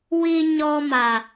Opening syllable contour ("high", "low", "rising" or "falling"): low